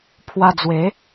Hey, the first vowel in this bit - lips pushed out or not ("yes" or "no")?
no